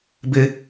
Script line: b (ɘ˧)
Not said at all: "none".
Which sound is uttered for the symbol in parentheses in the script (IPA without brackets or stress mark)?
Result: ɘ˧